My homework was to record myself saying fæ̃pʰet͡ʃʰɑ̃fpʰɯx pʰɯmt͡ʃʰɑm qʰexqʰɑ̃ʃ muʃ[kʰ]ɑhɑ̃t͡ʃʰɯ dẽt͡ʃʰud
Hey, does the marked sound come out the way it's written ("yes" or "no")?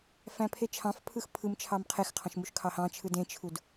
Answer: yes